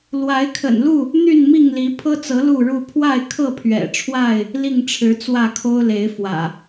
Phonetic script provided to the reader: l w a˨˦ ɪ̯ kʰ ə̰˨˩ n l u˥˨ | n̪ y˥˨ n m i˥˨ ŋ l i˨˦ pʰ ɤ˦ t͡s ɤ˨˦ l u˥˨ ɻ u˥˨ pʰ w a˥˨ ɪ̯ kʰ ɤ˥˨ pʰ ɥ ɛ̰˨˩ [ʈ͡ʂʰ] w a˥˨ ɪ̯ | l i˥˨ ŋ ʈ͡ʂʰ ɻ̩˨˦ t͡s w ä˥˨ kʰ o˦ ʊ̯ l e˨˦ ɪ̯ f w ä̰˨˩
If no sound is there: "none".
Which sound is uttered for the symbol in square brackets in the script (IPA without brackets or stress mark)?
ʈ͡ʂʰ